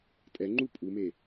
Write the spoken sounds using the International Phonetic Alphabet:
tʼɛŋ͡ǃu pʼume

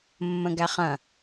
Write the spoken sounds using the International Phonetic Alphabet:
mːə̃ɡæχɐ̃

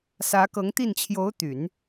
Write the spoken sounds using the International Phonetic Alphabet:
sä˧˥kɤ˧˥ŋt̪i˥˩n t͡ɕʰjo˧˥ʊ̯t̪y˨˩˦n

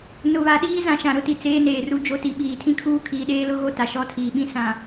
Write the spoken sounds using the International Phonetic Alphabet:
nʊ˨βa˨ɗiː˦ zã˨ʃã˨ɾʊ˦ti˨ t͡seː˦neː˨ru˦ d͡ʒo˦ti˨ ɓiː˨tʰĩ˦kʰuː˦ kʰiː˨ɗeː˦lʊ˦ɣo˦ ta˨ʃɔ˦˨tʰiː˨ɓĩ˦ sã˨

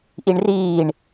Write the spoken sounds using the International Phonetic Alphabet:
ʔiɳriːɳ

